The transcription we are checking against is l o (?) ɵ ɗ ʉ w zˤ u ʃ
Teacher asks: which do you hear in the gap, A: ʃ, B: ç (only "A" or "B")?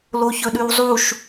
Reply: B